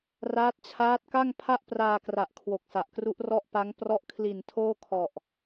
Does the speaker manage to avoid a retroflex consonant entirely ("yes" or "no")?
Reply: yes